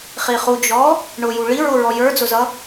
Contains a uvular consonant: yes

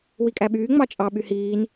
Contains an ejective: yes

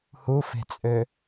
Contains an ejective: yes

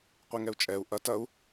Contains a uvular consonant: yes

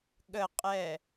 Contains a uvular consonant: yes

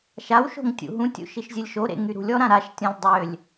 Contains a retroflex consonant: no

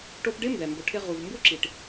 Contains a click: yes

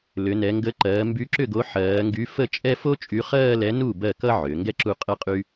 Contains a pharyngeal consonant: yes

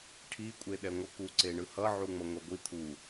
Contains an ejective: yes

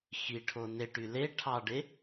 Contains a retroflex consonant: yes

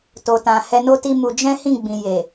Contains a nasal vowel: yes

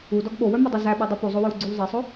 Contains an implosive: yes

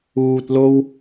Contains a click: no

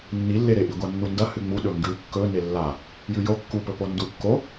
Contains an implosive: yes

